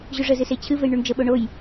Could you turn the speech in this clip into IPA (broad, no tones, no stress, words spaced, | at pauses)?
ʑʉʐəzɨ set͡ɕʰɨvej ɳʉɳd͡ʒəɓo ɳoj